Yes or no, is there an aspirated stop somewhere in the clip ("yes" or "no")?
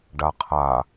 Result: yes